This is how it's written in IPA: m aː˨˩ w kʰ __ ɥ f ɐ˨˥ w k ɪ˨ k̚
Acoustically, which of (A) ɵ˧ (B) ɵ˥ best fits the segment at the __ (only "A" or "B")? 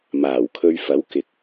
A